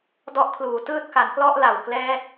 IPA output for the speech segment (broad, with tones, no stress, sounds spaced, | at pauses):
d ɔ˦˥ ʔ kʰ l uː˨˩ t ɯː˥˩ t̚ k a˩˦ n k l ɔ˥˩ ʔ l a˨˩ w k l ɛː˦˥ t̚